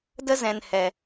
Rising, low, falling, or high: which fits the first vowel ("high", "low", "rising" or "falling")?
high